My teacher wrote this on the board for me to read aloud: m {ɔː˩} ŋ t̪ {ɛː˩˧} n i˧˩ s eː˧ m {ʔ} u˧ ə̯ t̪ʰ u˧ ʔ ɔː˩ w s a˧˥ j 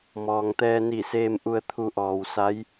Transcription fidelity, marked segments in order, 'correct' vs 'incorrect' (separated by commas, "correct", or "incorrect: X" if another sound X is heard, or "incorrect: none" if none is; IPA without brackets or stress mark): correct, incorrect: ɛː˧, correct